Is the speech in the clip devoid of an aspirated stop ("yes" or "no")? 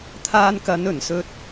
no